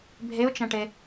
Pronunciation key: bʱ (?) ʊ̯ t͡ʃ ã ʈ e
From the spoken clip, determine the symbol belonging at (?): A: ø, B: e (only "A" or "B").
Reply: B